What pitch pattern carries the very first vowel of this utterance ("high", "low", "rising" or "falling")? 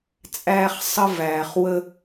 high